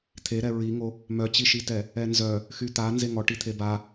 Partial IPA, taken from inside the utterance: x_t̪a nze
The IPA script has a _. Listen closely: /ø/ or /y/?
y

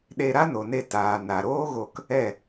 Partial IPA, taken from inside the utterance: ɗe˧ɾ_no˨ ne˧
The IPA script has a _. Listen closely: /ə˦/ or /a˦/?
a˦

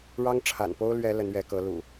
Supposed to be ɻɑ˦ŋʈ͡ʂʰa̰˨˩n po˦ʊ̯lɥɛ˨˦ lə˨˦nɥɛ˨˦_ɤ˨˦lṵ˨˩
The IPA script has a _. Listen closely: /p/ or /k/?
k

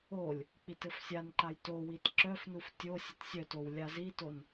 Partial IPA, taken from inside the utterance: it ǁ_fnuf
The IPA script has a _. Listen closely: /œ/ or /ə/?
œ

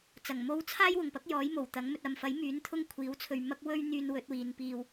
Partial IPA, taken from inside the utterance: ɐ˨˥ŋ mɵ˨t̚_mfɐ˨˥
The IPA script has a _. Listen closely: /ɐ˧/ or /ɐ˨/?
ɐ˨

